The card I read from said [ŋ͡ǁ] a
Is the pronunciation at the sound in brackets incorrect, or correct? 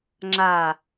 correct